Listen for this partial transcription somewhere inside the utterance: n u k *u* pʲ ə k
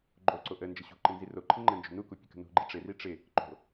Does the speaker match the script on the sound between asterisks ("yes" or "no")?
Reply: yes